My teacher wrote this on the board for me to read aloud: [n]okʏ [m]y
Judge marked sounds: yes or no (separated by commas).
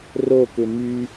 no, yes